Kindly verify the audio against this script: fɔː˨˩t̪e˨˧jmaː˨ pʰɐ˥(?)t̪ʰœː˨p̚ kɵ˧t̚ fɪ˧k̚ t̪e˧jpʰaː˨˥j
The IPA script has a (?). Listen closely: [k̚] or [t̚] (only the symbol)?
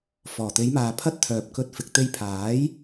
t̚